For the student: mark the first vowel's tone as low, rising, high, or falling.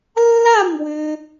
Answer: falling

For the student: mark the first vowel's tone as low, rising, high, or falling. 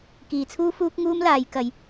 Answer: low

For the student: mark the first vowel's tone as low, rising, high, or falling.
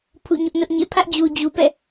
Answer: falling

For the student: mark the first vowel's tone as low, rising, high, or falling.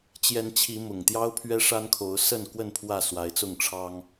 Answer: rising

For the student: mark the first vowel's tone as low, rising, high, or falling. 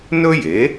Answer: high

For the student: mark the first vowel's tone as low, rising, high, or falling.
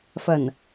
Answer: low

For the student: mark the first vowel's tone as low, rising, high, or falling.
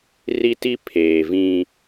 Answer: high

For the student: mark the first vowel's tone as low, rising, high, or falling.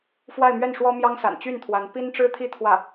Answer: falling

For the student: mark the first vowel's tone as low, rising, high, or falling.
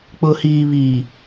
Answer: low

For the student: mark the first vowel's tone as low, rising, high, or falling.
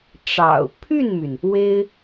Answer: low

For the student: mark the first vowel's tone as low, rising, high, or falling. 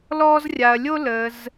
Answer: high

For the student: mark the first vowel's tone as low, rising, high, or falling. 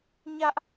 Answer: high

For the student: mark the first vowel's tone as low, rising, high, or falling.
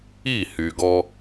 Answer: falling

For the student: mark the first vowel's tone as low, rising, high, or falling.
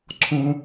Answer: low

